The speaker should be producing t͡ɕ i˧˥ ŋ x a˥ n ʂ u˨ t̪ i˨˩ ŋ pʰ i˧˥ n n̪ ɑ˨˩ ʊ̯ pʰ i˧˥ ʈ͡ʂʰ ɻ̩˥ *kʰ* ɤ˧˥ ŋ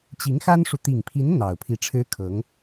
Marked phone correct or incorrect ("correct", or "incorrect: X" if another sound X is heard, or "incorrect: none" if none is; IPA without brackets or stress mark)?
correct